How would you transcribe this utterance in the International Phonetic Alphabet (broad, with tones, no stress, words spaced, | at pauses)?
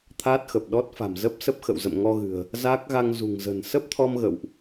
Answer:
t̪ʰaː˦˥t̚xə˨˩p̚ɗɔ˦˥t̚fa̤˨˩m zə˦˥p̚sə˦˥p̚xə̰˧˨wzə̰˧˨m ŋɔ˧ɣɨ̤˨˩ə̯ | zaː˦˥k̚ɣa˧ŋ zṳ˨˩ŋzə̤˨˩n sə˦˥p̚t̪ʰɔ˧m ɣə̰˧˨wʔ